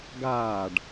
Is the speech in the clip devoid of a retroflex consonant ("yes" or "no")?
no